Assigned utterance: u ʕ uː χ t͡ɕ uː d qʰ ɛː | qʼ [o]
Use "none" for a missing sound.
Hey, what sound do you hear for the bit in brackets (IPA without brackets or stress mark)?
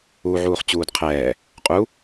u